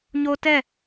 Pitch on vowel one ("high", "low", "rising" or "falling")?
high